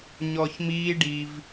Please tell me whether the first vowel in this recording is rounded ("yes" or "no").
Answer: yes